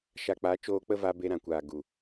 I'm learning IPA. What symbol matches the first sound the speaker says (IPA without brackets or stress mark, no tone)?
ʃ